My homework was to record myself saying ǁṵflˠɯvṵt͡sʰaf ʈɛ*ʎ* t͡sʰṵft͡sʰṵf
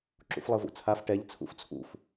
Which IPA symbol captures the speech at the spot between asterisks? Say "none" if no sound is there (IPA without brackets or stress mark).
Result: ʎ